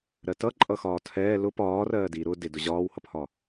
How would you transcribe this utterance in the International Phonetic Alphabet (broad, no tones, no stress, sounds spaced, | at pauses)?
ɾ ɜ t ʌ ǃʼ ʌ x ɒː tʰ ɛː l ʊ p ɒː r ɜː d i ɾ ʊ d ɪ d ʊ ʑ ɒː w h ʌ p h ɒː